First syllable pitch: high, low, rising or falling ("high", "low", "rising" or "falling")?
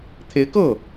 rising